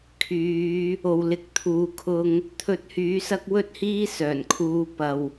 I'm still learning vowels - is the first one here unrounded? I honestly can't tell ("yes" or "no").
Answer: no